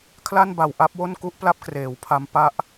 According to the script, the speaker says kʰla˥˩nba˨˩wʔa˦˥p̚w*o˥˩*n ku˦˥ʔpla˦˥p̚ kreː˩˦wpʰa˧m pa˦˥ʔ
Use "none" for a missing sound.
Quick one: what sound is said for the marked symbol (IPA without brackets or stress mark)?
o˥˩